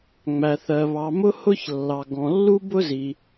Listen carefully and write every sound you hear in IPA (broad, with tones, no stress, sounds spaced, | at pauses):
ŋ͡m æ˩ θ ɜ˩ β ɑ˩ m ʊ˥ h ʊ˥ ç lː ɑ˩ ɡ ɔ̃˩ lː u˥ b ʊ˥ z i˩